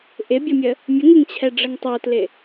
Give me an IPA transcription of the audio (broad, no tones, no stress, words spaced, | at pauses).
ʔɪbʲɒmʲə | mʲəŋɪŋt͡ɕʰɛɖ͡ʐəŋ tˤotlɪ